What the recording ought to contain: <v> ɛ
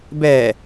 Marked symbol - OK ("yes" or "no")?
no